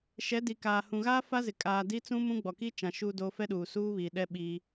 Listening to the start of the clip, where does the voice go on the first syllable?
rising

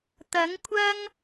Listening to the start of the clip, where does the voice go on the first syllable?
rising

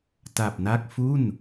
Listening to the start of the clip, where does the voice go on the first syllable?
low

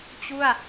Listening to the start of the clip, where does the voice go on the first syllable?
falling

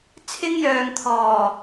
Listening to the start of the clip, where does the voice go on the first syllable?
high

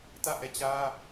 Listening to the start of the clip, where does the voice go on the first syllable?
falling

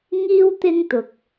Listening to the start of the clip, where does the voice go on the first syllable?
high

